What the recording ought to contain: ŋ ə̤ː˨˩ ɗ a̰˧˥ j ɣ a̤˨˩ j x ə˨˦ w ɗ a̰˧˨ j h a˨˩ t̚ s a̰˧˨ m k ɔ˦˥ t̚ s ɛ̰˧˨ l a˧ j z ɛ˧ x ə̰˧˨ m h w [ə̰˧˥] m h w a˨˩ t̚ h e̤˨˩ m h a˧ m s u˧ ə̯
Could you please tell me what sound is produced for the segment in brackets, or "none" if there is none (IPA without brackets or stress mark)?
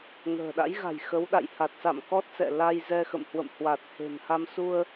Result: ə̰˧˨